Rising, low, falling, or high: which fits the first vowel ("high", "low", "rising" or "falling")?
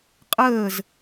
falling